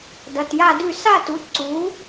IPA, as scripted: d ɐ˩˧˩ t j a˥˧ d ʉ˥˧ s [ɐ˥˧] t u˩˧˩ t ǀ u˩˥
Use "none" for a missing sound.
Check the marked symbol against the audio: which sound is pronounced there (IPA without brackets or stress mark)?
a˥˧